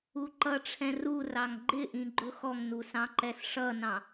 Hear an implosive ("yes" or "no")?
no